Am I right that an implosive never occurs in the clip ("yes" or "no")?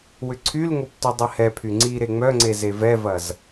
yes